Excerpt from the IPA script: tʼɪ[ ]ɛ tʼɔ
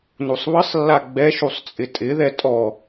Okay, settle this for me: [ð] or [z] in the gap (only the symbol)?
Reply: ð